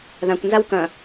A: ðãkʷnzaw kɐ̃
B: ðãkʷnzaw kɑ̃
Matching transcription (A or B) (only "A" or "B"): A